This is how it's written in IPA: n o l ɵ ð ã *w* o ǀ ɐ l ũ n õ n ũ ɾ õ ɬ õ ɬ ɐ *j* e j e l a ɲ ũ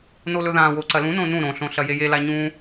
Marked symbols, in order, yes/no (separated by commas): yes, yes